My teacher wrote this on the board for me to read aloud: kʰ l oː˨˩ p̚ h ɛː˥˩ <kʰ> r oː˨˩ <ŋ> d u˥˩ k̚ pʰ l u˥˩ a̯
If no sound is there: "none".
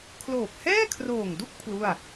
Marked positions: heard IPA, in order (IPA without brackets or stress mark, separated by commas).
kʰ, ŋ